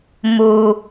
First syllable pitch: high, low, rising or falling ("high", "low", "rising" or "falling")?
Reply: low